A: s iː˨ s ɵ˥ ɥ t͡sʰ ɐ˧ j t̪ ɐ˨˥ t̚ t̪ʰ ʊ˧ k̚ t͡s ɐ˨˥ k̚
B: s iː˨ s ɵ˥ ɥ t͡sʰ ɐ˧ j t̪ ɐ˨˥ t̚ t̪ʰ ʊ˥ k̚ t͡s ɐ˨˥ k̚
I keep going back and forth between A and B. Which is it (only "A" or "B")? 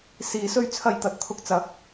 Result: A